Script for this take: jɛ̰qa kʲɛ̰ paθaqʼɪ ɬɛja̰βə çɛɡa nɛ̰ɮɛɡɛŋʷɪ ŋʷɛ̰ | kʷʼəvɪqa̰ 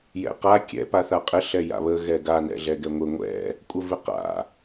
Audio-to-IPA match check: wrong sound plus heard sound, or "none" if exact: ç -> ɣ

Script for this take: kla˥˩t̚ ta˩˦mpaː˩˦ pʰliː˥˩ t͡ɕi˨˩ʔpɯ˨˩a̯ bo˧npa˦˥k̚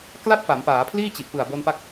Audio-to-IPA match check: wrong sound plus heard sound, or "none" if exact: t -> p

